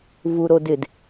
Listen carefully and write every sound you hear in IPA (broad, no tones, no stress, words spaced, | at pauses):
vuɾodɪd